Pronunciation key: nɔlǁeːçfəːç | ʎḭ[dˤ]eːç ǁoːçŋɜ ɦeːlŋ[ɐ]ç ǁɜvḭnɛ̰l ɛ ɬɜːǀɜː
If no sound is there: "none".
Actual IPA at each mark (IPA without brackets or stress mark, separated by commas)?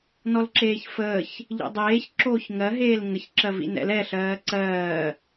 dˤ, ə